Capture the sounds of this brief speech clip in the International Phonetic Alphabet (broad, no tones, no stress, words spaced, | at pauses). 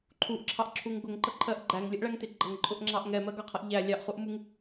ǃʰuʔǁʰɑʔǁʰuŋ ɡʊŋǃʌǃʰɜʔ ɡ͡ǃæŋlʲəʔɭæŋtɪ ɡ͡ǃʌŋǃʼʊʔŋ͡ǁɑʔ ŋɛmɜɡɑqʰʌʔ ʎæ lʲɑʔχuʔmuŋ